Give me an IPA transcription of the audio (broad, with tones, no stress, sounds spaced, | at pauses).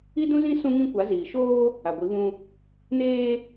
i˦ d ũ˦ z ĩ˦ s ũ˦ ŋ ĩ˦ kʷ a˨˦ z iː˨ ʃ oː˦ | a˨ ɡʷ i˨˦ β ũ˦ | n eː˦